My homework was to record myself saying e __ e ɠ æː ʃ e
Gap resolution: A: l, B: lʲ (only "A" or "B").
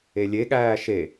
B